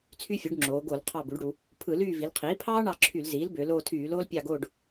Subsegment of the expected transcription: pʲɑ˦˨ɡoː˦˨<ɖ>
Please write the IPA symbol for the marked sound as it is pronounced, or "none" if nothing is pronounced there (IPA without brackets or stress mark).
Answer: ɖ